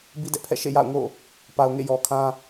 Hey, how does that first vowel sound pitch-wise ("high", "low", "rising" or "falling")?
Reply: high